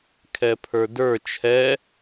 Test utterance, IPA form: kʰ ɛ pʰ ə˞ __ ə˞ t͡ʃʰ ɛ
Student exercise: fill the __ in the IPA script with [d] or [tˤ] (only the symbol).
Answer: d